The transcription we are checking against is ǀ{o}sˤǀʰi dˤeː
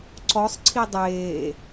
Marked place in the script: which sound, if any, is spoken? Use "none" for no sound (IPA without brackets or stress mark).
ɔ